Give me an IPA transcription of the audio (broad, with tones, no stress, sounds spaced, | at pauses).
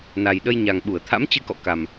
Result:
n a˨˩ j ɗ ə˧ j ɲ a˨˩ ŋ ɓ u˧˩ ə̯ t̪ʰ a̰˧˥ m t͡ɕ ɨ˧ k ɔ̰˧˨ k a˨˩ m